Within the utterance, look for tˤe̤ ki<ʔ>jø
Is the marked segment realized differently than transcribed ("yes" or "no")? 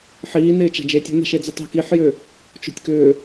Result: yes